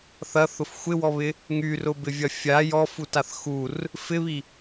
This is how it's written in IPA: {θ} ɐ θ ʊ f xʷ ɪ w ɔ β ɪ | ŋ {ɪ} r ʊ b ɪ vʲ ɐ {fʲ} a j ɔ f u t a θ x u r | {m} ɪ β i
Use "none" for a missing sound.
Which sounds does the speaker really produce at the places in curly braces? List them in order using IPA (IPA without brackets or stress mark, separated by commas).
θ, y, fʲ, f